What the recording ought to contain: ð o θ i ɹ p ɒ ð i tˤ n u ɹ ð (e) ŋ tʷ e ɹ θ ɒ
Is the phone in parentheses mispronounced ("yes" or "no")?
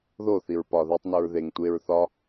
no